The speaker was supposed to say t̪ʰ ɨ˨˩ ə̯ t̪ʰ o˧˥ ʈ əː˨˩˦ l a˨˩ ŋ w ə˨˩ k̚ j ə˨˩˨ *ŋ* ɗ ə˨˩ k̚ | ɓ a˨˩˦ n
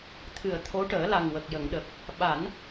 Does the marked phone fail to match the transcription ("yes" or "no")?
no